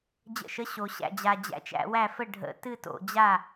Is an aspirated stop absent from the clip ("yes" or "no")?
yes